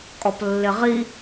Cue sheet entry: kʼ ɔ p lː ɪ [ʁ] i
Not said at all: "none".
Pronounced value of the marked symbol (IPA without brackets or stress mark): ʁ